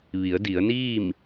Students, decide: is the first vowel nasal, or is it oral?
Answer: oral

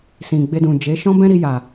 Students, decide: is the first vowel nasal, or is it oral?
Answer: nasal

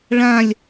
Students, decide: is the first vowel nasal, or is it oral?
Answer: nasal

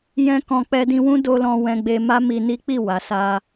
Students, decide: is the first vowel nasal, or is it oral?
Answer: nasal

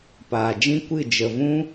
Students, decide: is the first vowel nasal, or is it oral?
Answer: oral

